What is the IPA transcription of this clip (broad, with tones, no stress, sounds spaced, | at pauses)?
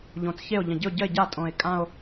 ʎ õ˨˩ t͡s ç e˥˩ o̯ ʎ ə̃˨˩ ɟ ɨ˥˩ o̯ ɟ ə˥˩ e̯ ɟ a˥˩ tʼ õ˨˩ e̯ kʼ ã˥˧ o̯